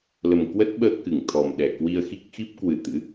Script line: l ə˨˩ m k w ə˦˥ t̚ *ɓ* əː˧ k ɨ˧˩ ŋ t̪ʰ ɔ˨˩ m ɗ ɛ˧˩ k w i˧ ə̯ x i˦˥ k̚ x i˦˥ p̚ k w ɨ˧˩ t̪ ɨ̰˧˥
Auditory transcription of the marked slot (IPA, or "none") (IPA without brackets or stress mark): ɓ